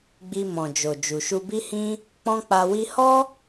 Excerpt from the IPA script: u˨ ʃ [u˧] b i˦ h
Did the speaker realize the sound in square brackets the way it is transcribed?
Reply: yes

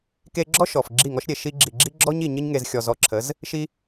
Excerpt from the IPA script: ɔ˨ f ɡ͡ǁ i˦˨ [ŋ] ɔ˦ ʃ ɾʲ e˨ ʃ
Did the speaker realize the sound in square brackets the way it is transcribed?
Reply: yes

